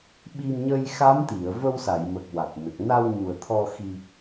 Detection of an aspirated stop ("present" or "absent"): present